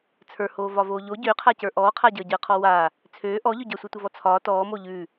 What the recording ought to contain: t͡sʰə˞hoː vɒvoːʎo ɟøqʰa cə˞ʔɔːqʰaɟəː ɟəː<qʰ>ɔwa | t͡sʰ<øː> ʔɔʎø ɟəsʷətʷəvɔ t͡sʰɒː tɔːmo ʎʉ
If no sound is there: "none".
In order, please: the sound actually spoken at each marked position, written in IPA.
qʰ, øː

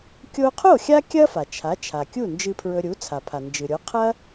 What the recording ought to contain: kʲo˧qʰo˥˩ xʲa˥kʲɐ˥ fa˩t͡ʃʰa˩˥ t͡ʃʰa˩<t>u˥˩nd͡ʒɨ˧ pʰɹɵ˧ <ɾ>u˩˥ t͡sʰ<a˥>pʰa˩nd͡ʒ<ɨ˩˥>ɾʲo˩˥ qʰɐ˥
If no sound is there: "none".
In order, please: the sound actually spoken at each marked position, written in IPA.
kʲ, ɾʲ, a˩, ɨ˩

